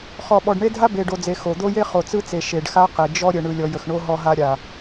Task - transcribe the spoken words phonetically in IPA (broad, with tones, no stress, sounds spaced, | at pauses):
χ ɔ˨ ɓ ɔ˨ ɖ ɳ e˦ dʱ a˦ b e˨ ɖ o˨ d͡z e˨ x o˨ d̪ o˦ j e˦ χ o˨ t͡s ɯ˦ t͡s e˨ ʃ e˨ ɖ x a˦ q e˨ d͡ʒ ɔ˦ ɾʲ ə˨ ɳ ɯ˨ lʲ ɔ˨ j ə˨ x ɳ o˦ ɦ ɔ˦ ɦ a˦ ɾʲ a˨